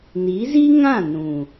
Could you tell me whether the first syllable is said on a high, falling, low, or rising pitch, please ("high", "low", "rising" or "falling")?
rising